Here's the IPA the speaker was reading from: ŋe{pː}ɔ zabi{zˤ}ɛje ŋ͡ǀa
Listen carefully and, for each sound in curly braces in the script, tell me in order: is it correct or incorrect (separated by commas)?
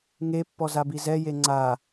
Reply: correct, incorrect